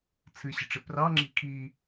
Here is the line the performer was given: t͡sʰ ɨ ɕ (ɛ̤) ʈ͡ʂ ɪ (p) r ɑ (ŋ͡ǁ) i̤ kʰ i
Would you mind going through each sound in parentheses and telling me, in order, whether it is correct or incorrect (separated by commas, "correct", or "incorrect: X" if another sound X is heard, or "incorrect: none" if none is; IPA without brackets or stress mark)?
incorrect: ə̤, correct, correct